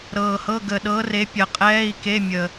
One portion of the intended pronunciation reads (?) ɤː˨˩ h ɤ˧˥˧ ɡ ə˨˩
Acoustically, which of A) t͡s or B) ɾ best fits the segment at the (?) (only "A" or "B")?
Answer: B